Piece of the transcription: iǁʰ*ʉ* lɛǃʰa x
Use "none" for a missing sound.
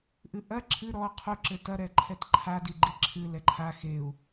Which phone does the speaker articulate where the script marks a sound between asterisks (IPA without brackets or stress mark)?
ɨ